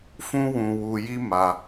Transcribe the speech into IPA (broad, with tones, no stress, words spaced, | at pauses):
fũ˦wũ˧wu˧ji˦ ma˧